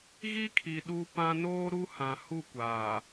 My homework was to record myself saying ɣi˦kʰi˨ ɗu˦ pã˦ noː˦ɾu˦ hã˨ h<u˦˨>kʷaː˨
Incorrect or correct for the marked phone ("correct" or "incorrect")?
correct